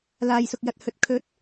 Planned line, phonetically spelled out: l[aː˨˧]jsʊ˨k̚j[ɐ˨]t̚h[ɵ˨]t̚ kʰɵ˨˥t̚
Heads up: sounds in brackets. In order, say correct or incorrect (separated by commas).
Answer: incorrect, correct, correct